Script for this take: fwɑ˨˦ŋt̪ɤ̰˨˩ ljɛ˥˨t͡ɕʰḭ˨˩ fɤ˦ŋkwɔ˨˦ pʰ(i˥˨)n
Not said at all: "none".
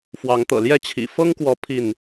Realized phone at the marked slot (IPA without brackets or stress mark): i˥˨